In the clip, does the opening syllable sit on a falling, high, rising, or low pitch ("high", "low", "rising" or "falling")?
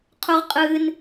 high